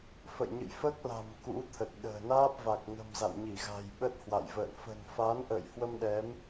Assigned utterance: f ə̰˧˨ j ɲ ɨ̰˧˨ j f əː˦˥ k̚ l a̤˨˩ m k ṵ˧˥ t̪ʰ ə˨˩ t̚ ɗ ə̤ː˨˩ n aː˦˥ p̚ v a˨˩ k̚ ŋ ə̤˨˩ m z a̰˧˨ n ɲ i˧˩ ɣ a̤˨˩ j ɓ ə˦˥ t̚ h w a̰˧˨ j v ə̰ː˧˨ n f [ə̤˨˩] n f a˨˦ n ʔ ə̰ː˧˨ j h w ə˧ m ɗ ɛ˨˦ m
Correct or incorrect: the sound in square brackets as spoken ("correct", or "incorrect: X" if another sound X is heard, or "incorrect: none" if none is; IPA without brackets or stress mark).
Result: correct